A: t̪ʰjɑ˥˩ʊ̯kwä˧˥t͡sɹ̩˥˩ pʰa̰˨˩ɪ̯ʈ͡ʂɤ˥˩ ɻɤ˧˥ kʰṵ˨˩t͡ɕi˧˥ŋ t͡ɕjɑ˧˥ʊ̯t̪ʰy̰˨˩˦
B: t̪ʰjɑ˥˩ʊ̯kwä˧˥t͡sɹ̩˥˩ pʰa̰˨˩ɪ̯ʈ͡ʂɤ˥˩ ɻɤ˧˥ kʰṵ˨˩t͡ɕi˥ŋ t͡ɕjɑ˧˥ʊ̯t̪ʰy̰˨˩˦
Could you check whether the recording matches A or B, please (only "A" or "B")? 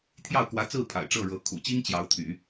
B